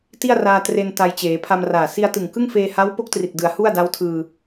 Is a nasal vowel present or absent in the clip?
absent